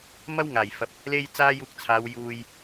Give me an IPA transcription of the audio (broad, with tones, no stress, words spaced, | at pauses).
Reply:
mɐ˥wŋaː˨˩jfɐ˨p̚ | le˥j t͡saː˥juː˧k̚t͡sʰaː˨˧w juː˨j